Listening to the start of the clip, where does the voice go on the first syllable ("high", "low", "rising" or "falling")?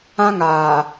high